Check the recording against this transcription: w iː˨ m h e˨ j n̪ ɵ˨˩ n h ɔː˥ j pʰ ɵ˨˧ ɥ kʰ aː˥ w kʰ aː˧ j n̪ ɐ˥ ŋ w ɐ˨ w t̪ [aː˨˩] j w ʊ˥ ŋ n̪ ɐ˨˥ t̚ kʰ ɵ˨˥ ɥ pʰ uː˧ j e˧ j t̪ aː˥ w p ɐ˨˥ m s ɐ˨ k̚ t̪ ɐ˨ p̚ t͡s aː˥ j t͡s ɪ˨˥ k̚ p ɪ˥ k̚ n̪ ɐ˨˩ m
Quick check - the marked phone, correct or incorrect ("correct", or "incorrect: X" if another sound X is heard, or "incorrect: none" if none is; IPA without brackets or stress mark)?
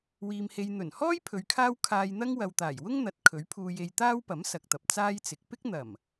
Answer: correct